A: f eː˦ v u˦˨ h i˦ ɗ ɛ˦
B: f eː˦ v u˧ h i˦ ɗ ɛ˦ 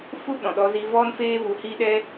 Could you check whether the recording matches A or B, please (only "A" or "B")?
B